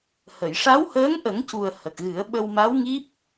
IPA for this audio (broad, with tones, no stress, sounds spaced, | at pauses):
h ə˨˩˨ j ʂ a˧˥ w h əː˧˥ ŋ ʔ ə˨˩˦ ŋ c u˨˩ ə̯ h ə˨˩ k̚ ɣ ɨ˨˩˦ ə̯ ɓ ə˧ w m a˧˥ w ŋ i˦˥ p̚